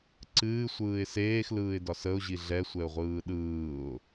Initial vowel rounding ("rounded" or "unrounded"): unrounded